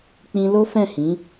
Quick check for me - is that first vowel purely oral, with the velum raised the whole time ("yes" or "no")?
no